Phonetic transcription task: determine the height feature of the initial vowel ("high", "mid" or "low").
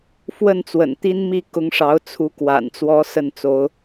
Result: mid